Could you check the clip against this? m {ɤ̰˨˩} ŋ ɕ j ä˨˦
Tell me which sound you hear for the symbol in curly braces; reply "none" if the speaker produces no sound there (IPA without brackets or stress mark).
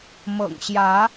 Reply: ɤ̰˨˩